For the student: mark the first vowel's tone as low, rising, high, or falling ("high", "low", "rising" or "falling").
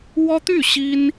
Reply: high